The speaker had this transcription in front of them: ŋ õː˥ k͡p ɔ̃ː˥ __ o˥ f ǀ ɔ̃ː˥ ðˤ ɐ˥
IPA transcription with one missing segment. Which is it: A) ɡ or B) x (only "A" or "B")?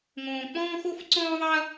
B